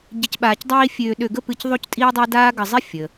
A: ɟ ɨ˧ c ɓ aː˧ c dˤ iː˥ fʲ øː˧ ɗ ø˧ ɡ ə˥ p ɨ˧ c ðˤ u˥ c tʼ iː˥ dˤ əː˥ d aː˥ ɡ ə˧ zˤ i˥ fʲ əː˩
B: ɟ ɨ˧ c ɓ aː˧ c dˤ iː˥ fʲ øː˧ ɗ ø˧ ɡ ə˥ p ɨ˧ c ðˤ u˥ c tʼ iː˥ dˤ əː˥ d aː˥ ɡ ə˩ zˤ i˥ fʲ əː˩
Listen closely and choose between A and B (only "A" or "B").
A